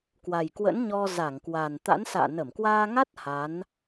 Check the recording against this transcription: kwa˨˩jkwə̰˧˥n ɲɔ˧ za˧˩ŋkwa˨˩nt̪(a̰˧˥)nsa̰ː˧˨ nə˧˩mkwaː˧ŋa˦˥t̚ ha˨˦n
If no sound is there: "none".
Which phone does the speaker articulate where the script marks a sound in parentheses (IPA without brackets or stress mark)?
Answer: a̰˧˥